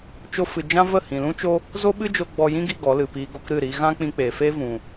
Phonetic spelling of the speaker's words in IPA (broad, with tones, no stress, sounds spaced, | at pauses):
t͡ʃ o˧ f ɨ˨ d͡ʒ ã˦ v ə˦˨ h ĩ˨ l ũ˦ t͡ʃ o˦ | z o˦ ɓ ɨ˦ d͡ʒ o˧ ɡ͡b ɔ˧ j ĩ˦ ɡ i˧ ɡ ɔ˨˦ l ɨ˨ p iː˧ ɡ o˧ k ɾ ɨ˦˨ ɾ i˧ ɣ ã˦ k͡p ĩ˧ k͡p eː˨ f eː˦ v ũ˨